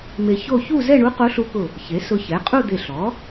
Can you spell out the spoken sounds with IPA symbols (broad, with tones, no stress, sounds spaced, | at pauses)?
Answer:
m e˧ ç o˥˧ ç u˥˧ z ɛ˥˧ ɳ u˧˥ q o˧˥ ɬ u˧˥ k ʊ˧˩ | ç e˩˥ s ʊ˧ ç ɛ˩˥ qʼ u˥˧ d̪ e˧˩ ɬ ɔ˩˥